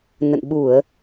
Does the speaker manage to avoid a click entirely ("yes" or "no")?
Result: yes